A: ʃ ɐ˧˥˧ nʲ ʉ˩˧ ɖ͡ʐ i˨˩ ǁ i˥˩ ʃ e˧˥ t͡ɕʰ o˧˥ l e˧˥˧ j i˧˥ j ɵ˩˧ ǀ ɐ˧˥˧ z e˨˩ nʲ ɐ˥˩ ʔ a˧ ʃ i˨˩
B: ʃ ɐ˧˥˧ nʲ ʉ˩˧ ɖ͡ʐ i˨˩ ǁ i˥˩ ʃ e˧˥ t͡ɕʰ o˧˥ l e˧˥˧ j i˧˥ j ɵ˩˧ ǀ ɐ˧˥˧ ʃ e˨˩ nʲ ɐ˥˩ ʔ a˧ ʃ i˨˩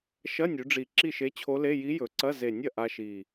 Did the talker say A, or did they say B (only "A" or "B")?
A